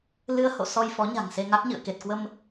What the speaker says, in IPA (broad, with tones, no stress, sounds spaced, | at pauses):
l ɨ˧ ə̯ h o̰˧˨ s ɔ˧ j f ɔ˨˦ ɲ a̤˨˩ ŋ s e˧ ŋ a˦˥ k̚ ɲ ɨ̰˧˨ ə̯ k e˨˩ t̚ k w ə˧ m